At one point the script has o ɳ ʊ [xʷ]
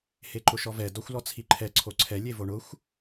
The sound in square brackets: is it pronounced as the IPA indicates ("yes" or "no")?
yes